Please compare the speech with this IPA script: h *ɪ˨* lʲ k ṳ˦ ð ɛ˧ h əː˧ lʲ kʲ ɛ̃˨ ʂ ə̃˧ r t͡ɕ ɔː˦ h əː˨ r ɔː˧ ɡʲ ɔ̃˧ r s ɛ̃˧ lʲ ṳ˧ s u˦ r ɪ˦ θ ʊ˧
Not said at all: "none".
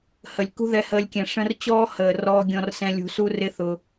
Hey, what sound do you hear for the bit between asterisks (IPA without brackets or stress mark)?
ə˨